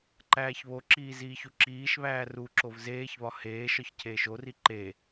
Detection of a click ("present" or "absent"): present